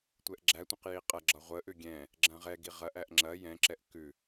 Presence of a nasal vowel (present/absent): present